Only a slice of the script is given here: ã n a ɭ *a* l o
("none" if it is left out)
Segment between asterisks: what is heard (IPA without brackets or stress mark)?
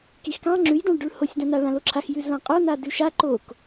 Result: ã